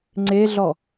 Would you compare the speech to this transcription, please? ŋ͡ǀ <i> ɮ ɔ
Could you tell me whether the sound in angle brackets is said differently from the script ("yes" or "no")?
yes